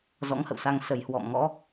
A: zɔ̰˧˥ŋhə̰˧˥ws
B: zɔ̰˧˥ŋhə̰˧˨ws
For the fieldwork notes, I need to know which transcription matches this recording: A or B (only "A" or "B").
B